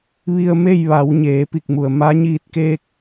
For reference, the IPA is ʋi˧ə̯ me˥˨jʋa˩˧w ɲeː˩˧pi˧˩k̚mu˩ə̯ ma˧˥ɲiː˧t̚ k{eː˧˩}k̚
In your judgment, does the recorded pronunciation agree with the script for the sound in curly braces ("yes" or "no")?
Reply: no